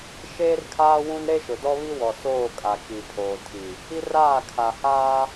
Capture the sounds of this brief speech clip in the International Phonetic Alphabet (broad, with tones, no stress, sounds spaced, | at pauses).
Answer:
ʃ eː˦ r kʰ aː˦ w ũ˦ n ɾ e˦ ʃ ʊ˨ d ɔ˦ β i˦ w ɔ˨ s oː˦˨ kʼ a˨ k i˨ pʰ oː˨ tʰ i˨ | i˦ r aː˦˨ kʰ a˨ h aː˦